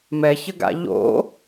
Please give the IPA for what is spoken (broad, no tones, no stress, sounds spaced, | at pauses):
m ɛ ç ə ɡ a̰ ʎ o̰